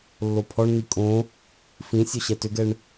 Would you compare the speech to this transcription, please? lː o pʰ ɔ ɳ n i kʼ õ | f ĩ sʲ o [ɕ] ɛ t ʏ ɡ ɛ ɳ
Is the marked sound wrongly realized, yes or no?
no